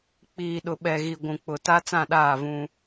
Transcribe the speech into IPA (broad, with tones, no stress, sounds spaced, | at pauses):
k͡p iː˨ ɗ ʊ˨ ɓ ɛ˨ ɣ i˨ ɡʷ ũ˨ k͡p ʊ˨ t a˦ t͡s ã˦˨ ɗ aː˦˨ v ũ˦